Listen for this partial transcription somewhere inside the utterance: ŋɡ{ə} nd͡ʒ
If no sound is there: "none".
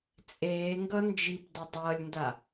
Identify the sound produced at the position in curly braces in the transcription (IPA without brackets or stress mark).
ʌ